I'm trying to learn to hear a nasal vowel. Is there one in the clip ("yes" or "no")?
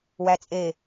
no